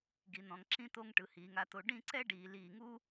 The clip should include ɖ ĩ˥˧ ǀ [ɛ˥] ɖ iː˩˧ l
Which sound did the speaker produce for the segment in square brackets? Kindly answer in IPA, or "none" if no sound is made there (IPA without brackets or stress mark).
ɛ˥